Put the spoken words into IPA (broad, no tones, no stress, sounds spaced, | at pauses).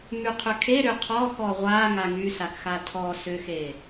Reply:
m y qʰ ʏ kʰ e ɾ ʏ qʰ ɔ x ɔ ʁʷ a ŋ a ŋ y s a k x a tʰ ɔ s ʏ x e